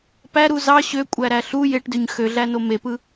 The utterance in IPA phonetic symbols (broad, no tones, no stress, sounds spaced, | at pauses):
p æ ɾ u z ɑ ɕ ø kʷʼ æ ɾ æ ɬ u j e ʈ d ø ɲ x ø ɮ æ n o m e p ɯ